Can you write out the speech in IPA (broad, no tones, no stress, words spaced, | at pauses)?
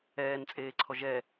ɛːnt͡sʼeːǀʰɔ ʒɛ